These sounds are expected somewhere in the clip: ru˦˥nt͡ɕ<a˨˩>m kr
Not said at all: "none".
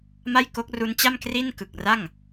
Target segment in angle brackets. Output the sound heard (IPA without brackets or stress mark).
a˥˩